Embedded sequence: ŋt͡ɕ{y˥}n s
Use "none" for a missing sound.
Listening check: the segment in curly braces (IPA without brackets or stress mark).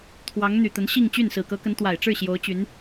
y˥˩